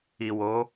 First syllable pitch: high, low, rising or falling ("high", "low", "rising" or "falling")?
low